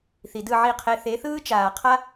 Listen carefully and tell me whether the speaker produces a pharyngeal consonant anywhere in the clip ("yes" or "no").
yes